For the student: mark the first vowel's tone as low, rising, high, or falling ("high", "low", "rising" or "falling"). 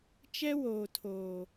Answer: high